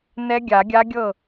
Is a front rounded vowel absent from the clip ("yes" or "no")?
yes